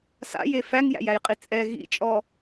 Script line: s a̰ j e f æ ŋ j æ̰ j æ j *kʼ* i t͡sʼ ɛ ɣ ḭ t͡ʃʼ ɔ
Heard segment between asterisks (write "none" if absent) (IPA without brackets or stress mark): qʼ